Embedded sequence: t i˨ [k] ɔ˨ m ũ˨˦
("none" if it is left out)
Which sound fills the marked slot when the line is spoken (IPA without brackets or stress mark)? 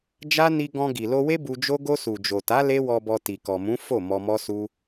k